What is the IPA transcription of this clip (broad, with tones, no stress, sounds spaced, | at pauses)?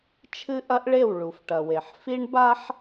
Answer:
t͡ʃʰ ɨ˦ ʔ ɐ˦ ʔ ɭ e˦˨ w ɭ u˨ f ʈ ɐ˨ w e˨ ħ f i˦ ɳ b a˦ ħ